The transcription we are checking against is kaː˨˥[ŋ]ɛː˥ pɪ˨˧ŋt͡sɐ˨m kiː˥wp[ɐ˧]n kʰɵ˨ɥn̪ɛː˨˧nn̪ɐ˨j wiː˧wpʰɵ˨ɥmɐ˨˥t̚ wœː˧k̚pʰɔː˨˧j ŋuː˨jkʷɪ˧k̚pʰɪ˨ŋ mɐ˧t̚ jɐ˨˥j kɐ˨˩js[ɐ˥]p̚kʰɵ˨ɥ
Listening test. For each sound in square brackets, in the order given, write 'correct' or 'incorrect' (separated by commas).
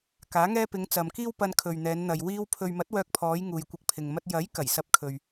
correct, correct, incorrect